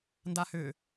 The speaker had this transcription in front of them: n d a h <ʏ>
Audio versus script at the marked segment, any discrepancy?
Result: no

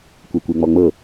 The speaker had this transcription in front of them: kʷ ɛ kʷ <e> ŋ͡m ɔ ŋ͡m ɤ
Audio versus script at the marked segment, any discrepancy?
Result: no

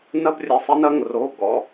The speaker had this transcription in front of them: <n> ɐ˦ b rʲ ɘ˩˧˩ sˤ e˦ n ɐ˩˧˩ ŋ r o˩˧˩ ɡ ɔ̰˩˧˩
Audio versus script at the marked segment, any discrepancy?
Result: no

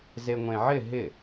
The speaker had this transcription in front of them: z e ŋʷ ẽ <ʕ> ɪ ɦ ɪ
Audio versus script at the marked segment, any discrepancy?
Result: no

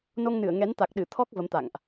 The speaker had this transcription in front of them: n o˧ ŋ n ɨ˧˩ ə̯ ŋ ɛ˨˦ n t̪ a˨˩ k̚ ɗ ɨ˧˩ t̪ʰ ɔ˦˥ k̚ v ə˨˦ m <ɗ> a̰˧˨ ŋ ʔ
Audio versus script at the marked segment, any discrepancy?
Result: yes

